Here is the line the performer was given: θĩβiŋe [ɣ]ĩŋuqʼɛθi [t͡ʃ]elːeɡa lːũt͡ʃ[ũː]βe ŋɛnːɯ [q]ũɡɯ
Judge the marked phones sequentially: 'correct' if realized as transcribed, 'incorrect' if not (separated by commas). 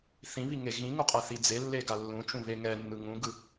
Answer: correct, incorrect, incorrect, incorrect